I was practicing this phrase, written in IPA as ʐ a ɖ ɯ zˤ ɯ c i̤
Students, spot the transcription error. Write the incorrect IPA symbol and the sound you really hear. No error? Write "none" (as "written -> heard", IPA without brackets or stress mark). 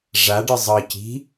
none